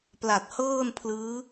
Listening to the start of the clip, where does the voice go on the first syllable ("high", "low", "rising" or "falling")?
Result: low